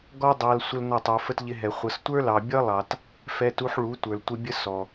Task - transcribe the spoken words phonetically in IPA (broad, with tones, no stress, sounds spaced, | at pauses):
ɡ ɔ˦ dˤ ɑ˧ l sʷ ə˦ l n ʌ˦˨ tˤ ə˞˧ f ə˦ t ʎ ɪ˧ ɦ ɛ˨ χʷ ʌ˨ s tʷ ə˞˦ l ɑ˨ bʲ ʌ˦ lˠ ɑ˨ t | f ɛ˧ t u˧ ħ ɭ u˨˦ tʷ ə˞˨ l tʷ ɪ˧ bʲ ə˦ s ɔ˨